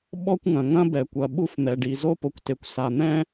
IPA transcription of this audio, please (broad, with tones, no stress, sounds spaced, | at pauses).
ɓ ɔ˥ kʷ ŋ ɐ̃˩ ŋ ɐ̃˥ b ɛ˩ kʷ ɐ˩ ɓ u˥ f n̪ ɛ˩ ɖ i˩ z o˥ p o˩ kʷ t e˩ kʷ s a˩ n̪ ɛ̃˥